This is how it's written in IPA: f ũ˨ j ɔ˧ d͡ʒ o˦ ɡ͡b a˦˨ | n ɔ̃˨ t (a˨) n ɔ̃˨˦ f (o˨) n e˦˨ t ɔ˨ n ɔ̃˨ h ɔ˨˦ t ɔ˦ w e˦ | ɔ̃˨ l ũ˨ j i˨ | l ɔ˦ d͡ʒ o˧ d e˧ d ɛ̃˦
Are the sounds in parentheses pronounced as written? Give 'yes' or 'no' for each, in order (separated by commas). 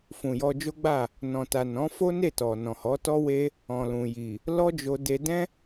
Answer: yes, no